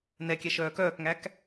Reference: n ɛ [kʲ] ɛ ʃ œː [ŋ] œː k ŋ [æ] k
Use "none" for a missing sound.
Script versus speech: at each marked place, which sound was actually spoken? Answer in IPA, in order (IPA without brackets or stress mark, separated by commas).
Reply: kʲ, k, æ